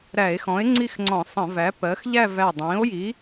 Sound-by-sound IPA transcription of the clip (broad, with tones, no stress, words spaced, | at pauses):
ɾæ˧˩˧e̯xɔ̃˩˥e̯ ŋ͡ǀi˥˧xŋ͡ǀɔ̃˧˩˧sˤə̃˧˩˧væ˩˥ pɜ˩˥x ʎæ˥˧væ˧˩dˤĩː˩˥o̯ji˩˥